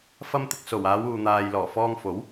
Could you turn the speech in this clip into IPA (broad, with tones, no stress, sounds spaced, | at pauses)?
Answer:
f ɐ˧ m t̪ ɪ˨ k̚ s o˨˩ w aː˨˧ w uː˨ n̪ aː˨ j l ɔː˨˩ f ɔː˧ ŋ f o˨˥ w